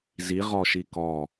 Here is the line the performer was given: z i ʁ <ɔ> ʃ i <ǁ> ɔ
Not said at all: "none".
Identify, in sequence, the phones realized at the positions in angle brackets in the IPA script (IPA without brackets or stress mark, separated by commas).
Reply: ɔ, k